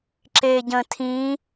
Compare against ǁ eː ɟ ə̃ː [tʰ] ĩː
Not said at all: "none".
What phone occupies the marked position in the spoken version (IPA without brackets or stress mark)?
tʰ